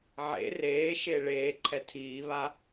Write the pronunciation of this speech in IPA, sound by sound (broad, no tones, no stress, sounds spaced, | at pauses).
ʕ ḛ r eː ʃ e ɭ eː ǃʰ ɛ tʰ iː β a